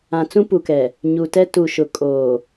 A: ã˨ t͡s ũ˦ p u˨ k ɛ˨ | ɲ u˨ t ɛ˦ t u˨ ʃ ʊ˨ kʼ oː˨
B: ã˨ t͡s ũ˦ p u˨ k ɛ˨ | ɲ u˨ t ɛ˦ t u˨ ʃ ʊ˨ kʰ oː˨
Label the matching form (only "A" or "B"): A